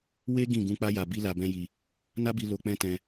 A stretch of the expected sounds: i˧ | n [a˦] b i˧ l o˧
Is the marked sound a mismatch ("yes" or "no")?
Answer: no